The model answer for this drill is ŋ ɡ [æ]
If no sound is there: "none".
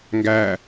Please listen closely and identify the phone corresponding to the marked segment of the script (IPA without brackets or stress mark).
æ